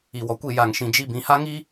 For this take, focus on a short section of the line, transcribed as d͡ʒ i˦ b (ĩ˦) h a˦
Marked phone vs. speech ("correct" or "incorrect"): incorrect